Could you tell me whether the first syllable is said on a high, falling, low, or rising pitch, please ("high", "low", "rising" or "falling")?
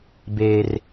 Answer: high